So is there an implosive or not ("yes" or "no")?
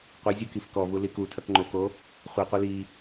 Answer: no